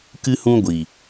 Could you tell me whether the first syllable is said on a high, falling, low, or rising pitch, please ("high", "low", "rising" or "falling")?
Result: high